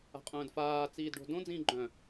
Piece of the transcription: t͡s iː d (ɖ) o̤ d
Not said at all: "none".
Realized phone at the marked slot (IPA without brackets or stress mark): ɖ